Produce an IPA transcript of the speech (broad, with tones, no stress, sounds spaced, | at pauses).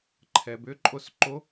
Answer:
ǃʰ ɛ˩ b ʏ˧˥ ǃʼ o˧˥ s ǃ o˧˥